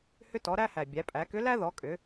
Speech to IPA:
h ʏ˧ t ɔ˩˧ ɾ æ˧ h æ˩ bʲ æ˩˧ pʼ æ˩˧ k ʏ˧˥ l æ˥ ð ɔ˩˧ kʼ ʏ˩˧

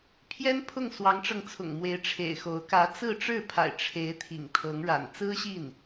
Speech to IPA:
pʰ j ɛ˥ n pʰ ʊ˥˩ ŋ s w ɑ˧˥ ŋ ʈ͡ʂ ɤ˧ ŋ t͡sʰ ʊ̰˨˩ ŋ m w e˧˥ ɪ̯ ʈ͡ʂʰ ḛ˨˩ ɪ̯ x o˧˥ ʊ̯ k ä˧˥ t͡s ɹ̩˥˧ ʈ͡ʂ ɻ̩˥˩ pʰ a̰˨˩ ɪ̯ ʈ͡ʂʰ e˧˥ ɪ̯ t̪ʰ ḭ˨˩ ŋ t̪ʰ ɤ˧˥ ŋ ɻ a̰˨˩ n t͡s ɹ̩˥ ɕ i˥˩ n

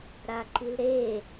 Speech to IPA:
ɾ a ǃ i l ɾ e

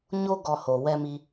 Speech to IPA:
ɲ o˦ ɡ ɔ˧ h o˨ w ɛ˧ m i˧

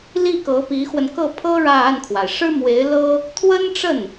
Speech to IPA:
l i˥˩ k ɤ˧˥ p i˧˥ x w ə˧ n k ɤ˥˩ pʰ ɤ˥ ɻ ä˥˧ a˥˩ n kʰ w a˩ ɪ̯ ʂ ɻ̩˥ m w e˧˥ ɪ̯ l ɤ˥ | t̪ʰ w ə˥ n ʈ͡ʂ ə˥˩ n

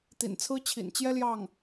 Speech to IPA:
t̪ ḭ˨˩ n t͡sʰ ɹ̩˥ t͡ɕʰ ḭ˨˩ n t͡ɕ j ɛ˥ l j ɑ˥˩ ŋ

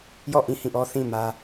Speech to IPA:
j ɔ˦˨ ʔ ĩ˦˨ h ĩ˦˨ ʔ ɔ˦ θ ĩ˦˨ m ä˦

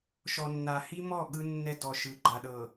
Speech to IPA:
ʃ ɔ˨ nː a˨ h i˦ m ɔ˦˨ ɠ ɯ˦ nː ɛ˦ d ɔ˨ ʃ ɯ˨˦ ɡ͡ǃ a˨ ɗ ɤ˨

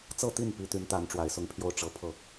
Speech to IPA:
t͡s ɤ˥˧ t̪ i˥˩ n p i˥ t̪ y˧˥ n t̪ a˧˥ n ʈ͡ʂ w a˨˩ ɪ̯ s ʊ˥˧ ŋ pʰ j o˥˩ ʊ̯ ʈ͡ʂ ɤ˧˥ pʰ ɤ˥˩

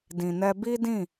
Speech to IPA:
d ĩ˨ n ɛ˧ b i˦ d ĩ˦˨

